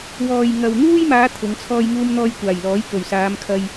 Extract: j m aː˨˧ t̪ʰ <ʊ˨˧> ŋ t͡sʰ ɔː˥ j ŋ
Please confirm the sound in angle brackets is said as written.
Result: yes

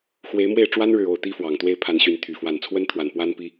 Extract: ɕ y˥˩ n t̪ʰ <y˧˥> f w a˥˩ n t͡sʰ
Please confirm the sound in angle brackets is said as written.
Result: no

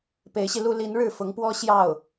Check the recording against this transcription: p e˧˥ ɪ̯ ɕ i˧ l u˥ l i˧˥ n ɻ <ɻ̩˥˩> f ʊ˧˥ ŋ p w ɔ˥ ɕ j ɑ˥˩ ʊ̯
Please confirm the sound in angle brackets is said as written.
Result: yes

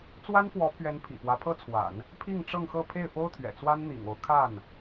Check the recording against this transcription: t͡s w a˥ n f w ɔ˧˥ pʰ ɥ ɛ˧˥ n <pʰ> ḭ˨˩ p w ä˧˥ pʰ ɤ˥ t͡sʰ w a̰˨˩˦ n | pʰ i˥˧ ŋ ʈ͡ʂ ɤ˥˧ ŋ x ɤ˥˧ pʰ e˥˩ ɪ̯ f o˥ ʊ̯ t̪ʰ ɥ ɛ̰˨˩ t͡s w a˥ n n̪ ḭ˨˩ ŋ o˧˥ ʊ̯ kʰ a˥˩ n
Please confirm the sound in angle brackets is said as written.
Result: yes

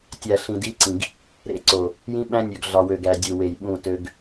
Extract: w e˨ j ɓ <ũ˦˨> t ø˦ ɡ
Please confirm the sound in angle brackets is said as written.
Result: yes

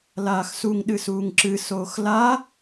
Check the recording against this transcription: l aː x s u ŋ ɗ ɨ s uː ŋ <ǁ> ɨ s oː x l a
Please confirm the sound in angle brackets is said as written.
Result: yes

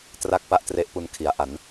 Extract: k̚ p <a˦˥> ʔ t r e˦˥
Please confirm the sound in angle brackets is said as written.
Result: no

